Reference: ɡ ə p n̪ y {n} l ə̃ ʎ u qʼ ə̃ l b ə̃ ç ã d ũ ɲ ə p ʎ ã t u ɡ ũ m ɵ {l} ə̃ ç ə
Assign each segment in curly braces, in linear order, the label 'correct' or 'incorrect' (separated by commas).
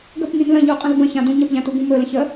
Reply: correct, correct